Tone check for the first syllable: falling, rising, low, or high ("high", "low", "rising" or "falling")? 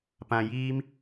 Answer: low